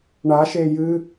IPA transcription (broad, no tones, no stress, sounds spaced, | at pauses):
ɳ a ʃ e j ɨ